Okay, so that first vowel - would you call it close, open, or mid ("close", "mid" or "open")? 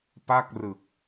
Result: open